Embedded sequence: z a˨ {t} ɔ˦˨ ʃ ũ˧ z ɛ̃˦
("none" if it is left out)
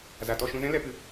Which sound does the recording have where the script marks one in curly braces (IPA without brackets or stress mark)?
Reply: t